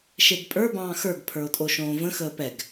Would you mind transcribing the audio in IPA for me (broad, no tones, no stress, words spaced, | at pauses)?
ʃedpʼə˞bɑ̃ː xə˞ɡpʰə˞o̯ tʼoʃõːvə̃xəː pɛɡ